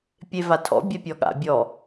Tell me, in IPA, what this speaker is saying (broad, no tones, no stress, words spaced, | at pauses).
pʲevatʰɔ̰ bʲɛpʲɔɠa̰ bʲɔ